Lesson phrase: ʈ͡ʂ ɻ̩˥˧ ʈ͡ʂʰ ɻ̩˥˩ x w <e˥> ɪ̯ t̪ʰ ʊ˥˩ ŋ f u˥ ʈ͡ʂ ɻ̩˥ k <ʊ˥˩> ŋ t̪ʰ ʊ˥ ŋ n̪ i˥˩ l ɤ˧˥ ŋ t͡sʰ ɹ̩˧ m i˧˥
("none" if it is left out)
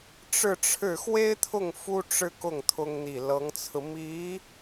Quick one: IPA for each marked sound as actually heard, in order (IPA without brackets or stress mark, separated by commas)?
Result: e˥, ʊ˥˩